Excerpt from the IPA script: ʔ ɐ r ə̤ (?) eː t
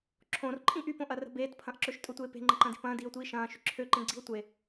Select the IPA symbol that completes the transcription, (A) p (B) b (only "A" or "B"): B